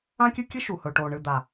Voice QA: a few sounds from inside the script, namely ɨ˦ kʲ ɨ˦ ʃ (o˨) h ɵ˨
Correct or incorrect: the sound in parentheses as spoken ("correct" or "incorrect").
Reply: incorrect